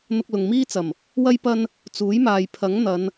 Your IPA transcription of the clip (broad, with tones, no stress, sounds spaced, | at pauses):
n̪ ʊ˧ k̚ l ʊ˨ ŋ m iː˥ t͡s ɐ˨˩ m | w ɐ˥ j p ɐ˧ n | t͡s uː˨˥ j m aː˨ j pʰ ɐ˨˥ ŋ n̪ ɐ˨˧ n